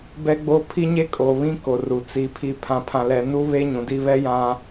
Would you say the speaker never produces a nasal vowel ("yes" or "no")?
no